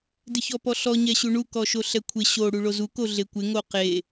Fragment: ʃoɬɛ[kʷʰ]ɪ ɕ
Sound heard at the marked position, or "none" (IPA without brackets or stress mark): kʷʰ